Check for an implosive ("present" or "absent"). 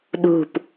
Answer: present